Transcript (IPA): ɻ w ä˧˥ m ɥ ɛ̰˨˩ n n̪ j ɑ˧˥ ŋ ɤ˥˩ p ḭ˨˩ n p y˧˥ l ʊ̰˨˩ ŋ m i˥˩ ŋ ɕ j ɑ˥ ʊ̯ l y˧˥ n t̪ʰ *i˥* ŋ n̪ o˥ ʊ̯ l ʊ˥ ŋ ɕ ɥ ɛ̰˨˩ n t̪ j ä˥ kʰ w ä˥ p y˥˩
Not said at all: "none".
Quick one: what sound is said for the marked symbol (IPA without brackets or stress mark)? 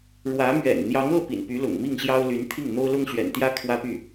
i˥˩